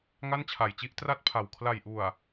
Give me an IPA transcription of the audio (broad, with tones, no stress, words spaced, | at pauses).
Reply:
ŋa˥˩nt͡ɕʰa˨˩jt͡ɕi˥˩ʔ tra˥˩t̚pʰa˨˩w kʰla˨˩jʔu˨˩a̯